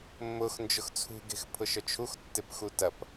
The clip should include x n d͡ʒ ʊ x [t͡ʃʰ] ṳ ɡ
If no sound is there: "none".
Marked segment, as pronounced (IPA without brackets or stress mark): t͡sʰ